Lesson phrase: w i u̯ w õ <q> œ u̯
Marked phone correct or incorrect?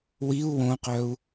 correct